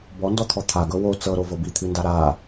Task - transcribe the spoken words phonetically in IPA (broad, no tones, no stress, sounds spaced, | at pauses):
b ɔ n d ɔ t̪ʰ ɔ t̪ʰ a ɡ ɤ w o t͡s ɤ ɾ o v ɤ b i t̪ʰ ɨ n d a ɾ a